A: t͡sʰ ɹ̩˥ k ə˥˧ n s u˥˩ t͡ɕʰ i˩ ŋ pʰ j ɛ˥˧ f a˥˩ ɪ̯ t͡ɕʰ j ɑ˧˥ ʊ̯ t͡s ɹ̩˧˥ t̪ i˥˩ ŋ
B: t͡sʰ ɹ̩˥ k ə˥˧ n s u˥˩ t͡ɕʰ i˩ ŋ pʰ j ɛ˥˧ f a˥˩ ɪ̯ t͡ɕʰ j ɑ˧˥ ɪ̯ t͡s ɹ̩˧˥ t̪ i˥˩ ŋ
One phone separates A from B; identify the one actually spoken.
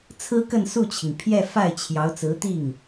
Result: A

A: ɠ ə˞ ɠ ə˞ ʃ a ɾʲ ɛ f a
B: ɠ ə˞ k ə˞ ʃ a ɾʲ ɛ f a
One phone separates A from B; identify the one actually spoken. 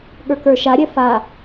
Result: B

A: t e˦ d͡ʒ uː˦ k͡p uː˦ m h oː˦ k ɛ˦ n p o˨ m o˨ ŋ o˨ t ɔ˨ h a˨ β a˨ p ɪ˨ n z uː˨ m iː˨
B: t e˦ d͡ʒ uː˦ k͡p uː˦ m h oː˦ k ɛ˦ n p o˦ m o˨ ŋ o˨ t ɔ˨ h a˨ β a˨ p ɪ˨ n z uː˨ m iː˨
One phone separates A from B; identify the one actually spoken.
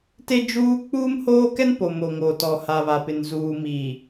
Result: A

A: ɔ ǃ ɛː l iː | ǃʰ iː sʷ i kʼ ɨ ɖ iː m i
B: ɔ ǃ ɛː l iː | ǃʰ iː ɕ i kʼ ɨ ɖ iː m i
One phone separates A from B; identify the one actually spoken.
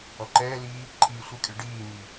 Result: A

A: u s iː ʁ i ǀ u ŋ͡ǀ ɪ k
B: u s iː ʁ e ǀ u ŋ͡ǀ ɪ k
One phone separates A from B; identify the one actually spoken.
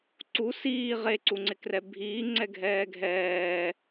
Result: B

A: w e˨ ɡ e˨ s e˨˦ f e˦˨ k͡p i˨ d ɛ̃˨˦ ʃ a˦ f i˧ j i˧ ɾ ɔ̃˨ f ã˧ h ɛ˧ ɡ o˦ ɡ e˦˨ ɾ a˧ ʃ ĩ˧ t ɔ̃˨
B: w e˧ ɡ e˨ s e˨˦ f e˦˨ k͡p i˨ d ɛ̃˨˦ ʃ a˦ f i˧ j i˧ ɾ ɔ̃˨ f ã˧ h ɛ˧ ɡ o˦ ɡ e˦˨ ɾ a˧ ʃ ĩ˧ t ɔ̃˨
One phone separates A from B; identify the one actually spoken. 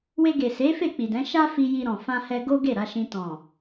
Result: B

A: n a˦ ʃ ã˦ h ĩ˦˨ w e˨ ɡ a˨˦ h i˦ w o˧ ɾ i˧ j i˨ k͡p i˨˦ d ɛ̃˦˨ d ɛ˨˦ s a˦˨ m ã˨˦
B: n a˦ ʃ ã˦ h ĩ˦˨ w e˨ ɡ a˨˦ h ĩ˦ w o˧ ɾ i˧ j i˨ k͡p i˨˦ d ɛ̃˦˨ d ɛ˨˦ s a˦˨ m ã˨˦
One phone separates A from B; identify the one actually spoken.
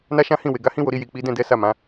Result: B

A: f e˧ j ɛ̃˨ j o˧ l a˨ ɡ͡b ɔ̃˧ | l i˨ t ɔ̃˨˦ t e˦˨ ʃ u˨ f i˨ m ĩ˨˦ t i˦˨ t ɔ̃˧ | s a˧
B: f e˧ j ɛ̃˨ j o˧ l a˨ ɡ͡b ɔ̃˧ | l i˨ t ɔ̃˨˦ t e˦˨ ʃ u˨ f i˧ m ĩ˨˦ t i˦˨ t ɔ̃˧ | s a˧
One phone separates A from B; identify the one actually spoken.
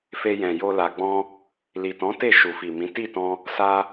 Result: A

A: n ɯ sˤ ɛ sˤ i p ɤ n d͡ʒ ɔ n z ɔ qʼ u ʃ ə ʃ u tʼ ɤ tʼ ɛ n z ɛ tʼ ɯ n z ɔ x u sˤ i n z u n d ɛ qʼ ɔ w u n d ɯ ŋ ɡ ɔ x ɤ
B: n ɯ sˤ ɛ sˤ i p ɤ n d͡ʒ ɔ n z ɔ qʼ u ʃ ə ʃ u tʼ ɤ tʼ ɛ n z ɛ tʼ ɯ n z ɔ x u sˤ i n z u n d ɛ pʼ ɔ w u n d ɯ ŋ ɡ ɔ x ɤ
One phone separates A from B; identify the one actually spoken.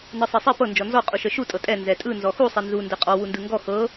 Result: A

